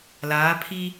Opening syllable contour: rising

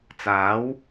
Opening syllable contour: rising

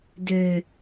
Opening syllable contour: high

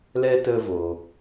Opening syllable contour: high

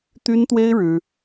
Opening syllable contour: high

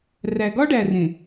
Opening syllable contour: low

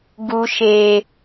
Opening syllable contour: high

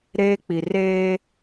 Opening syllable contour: high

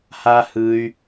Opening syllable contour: high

